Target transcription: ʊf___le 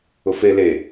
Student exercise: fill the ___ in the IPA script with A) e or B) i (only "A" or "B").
A